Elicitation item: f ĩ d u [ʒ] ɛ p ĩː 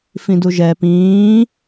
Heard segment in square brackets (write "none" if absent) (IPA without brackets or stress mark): ʒ